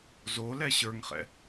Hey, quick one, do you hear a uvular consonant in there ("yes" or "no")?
yes